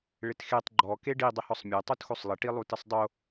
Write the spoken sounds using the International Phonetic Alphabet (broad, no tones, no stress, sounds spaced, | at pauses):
ɭ ɪ t x e tˤ ɡ͡ǃ ɔ k e ɖ i dˤ ɪ h ɔ sˤ mʲ e tˤ u t x o sˤ lˠ ɪ ʈ i lˠ u t ɪ sˤ dˤ o